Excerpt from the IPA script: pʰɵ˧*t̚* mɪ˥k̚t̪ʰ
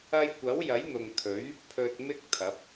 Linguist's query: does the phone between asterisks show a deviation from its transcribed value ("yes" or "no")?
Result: no